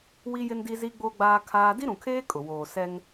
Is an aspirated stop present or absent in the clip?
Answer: present